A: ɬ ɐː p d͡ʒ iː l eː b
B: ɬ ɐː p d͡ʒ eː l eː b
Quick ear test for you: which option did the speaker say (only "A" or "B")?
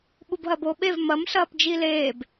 A